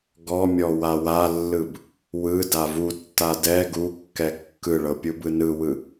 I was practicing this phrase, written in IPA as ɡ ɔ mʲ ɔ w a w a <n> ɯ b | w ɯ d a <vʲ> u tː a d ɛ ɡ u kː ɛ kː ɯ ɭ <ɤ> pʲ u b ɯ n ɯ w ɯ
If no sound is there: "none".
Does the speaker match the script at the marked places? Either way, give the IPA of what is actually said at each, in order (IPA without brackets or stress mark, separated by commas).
lː, v, ɤ